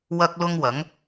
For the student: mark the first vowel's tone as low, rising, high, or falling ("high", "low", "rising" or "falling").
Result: high